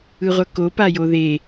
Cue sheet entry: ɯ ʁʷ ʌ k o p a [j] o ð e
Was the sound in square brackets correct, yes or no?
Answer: yes